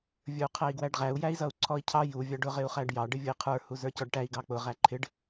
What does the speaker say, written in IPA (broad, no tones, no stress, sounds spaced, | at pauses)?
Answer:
vʲ ə˞ u̯ qʰ æ i̯ ɡ w æ ɖ ʁ æ u̯ j æ i̯ z ʌ u̯ ǀʰ ɔ i̯ cʰ ɑ j u vʲ ɑ ɖ ʊ ʁ ɪ u̯ χ æ ɖ j ɑ ɖ ɪ vʲ ʊ i̯ qʰ ə˞ h u z ə˞ c ɔ ɖ ʈ æ i̯ ɡ ɑ k͡p ʊ ʁ æ ǃʰ ɪ ɖ